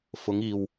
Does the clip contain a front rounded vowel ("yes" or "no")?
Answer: no